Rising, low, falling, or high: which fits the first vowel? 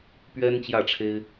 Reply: high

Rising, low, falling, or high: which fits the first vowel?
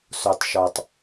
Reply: low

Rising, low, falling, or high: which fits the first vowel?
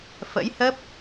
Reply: rising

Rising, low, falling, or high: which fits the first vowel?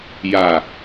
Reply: low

